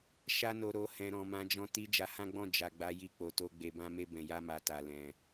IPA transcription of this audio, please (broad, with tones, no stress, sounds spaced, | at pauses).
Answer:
ʃ a˧ n o˨ ɾ o˨ h ɛ̃˨ ɾ ɔ̃˨ m ã˨˦ d͡ʒ ɔ̃˧ t i˧ d͡ʒ a˧ h ã˦ ɡ͡b ɔ̃˦˨ d͡ʒ a˨ ɡ͡b a˨˦ j i˧ k͡p o˨ t o˧ ɡ͡b e˨ b ã˧ m e˧ b ɛ̃˨ j a˧ m a˨ t a˨ l ɛ̃˨